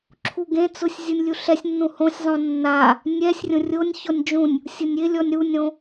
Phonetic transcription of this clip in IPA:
ǁʰ u ɡ ẽ t͡s ʊ sʲ zʲ u nʲ lʲ u ɬ ɛ sʲ nː ũ h õ sʲ zˤ õ nː a | nʲ ɛ sʲ rʲ õ rʲ o nʲ ç ɔ nʲ d͡ʒ ũ nʲ | sʲ ʊ nʲ ɪ lʲ ɔ nʲ ɾ u nʲ ɾ õ

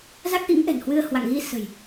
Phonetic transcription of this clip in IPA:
z a˦˥ k̚ ʔ ḭ˧˥ ŋ ʔ ɛ̤˨˩ n h w ɨ˧ ə̯ h w a̰˧˨ ŋ ɣ i˧ s ə̤˨˩ j

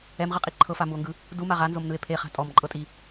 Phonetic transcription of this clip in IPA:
ɛ m ʁ ɯ qʼ i ǃʰ ɤ f a m u o̯ ŋ ɡ ɯ | d u m a ʁ a n z o m n ɯ e̯ pʰ e χ a̤ tʼ ɔ m ǃʼ ɤ tʼ i

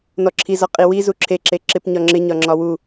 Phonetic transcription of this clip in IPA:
n ɔ ǁʰ i z ɒ qʼ i w i z u ǁʰ e ǁ e ǁ ɪ p ɲ ɒ ŋ͡ǁ ɪ ɲ ɒ ŋ͡ǁ ɒ w u

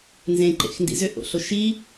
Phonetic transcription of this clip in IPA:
n z ẽ ǃ ḛ x n d ḭ z ʏ ʔ o̰ ɬ o ʃ i

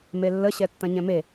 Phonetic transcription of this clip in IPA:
m e lː ə ɕ ɛ tː ɐ̃ ɲ ɛ̃ m e

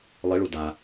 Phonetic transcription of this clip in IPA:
lˠ ɪ ɭ u d a

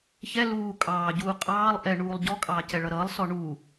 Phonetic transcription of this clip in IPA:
ç ɛ l uː kʼ ɑː ɟ uː qʼ ɑː lˠ ʔ ɛ ɳ uː lˠ ɟ ɔ kʼ ɑː c ɛ ɭ ʌ ɾ ʌː lˠ s ɔ ɳ u

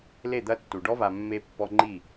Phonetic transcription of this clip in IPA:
l e˦˨ d̪ ɐ˦ tː u˨ ɖ ɔ˦ v a˨ mː e˦ pː ɔ˦ ŋ͡ǃ i˦˨

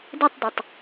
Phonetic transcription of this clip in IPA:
d i tˤ d u tˤ

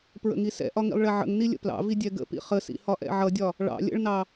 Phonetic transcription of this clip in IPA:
p ɹ ə̰ ŋ i s ɛ̰ ʔ ɒ ŋ ḭ lˠ ɭ ɛ ʕ ə̰ ŋ n i lʲ ə̰ p l ɑ̰ v i dʲ ɛ ɡ ə̰ p ḭ χ ə s ḭ h ɒ ʔ ɛ̰ ʕ ʌ dʲ ɒ | ɭ ɑ̰ lʲ ə̰ ɭ n ɑ

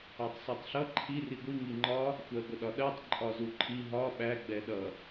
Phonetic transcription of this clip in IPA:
ɑ tˤ s ɑ tˤ ɬ ʌ ǃʰ i r i ɡʷ i ŋ i ŋ͡ǃ ɒ | xʷ ɜ ɡʷ ə ɗ ɒ ɗ ɜ tˤ ǃʼ ɒ z u ǃʰ i ɦ ɒ ɓ æ ɡ͡b ɛ ɗ ʌ

